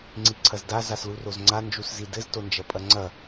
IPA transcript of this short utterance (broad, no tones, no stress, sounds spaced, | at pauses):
ŋ͡ǀ i ǀʰ ɐ z d a z a s l u r o z ŋ͡ǀ a n d͡ʒ u s z i d ɘ z t o n d͡ʒ ɐ pʼ ɐ ŋ͡ǀ ɐ